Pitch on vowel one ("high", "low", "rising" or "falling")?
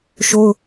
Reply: high